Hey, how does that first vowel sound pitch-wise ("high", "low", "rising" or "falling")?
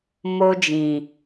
high